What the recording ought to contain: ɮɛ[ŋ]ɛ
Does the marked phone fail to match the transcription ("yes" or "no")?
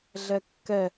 yes